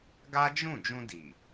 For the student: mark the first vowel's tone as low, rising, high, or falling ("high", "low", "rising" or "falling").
high